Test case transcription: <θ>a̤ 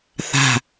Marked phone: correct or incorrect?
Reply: correct